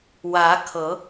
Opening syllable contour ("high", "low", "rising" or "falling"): rising